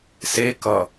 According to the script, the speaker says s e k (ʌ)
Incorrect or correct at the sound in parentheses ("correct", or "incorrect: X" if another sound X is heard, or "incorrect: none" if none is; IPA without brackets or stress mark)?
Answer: correct